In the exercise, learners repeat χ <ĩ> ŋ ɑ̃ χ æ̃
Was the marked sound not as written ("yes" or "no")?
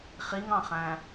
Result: yes